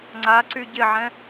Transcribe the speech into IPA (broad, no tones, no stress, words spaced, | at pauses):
ŋ͡ǀaǀy ɟɪʕɛ̃